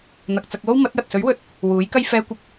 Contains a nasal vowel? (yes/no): no